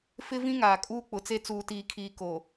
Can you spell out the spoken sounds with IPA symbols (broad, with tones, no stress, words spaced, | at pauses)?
fɪ˦vĩ˦ ŋaː˨kʼuː˦k͡pʊ˨t͡se˦ t͡suː˨tiː˨kʰiː˨ koː˨